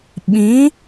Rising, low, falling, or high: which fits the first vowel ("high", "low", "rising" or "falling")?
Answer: rising